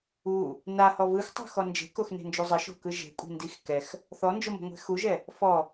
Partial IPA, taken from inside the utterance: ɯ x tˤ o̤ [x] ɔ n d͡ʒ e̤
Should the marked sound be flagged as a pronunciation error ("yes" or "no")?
no